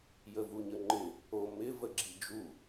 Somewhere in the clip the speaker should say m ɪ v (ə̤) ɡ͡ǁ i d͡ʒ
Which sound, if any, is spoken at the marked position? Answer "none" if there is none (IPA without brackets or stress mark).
ə